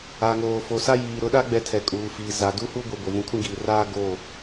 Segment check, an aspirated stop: present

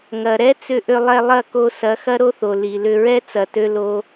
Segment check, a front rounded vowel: present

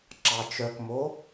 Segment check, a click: present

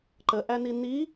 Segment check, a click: present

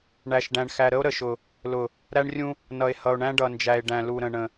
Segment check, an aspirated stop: absent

